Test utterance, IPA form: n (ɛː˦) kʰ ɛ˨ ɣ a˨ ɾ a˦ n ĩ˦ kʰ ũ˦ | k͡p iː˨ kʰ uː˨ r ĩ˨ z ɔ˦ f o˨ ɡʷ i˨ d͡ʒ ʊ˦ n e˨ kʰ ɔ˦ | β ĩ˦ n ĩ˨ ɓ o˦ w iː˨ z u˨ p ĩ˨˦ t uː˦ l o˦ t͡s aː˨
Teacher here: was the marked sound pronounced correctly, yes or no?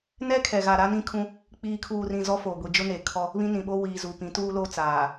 no